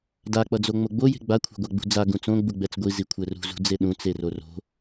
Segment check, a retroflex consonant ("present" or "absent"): absent